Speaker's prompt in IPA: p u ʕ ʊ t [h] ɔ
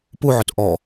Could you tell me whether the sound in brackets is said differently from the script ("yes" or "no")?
yes